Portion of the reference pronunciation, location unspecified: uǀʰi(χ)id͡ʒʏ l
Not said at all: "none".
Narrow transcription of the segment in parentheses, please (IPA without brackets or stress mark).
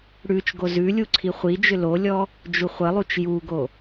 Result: χʷ